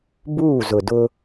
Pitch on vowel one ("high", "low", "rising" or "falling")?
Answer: falling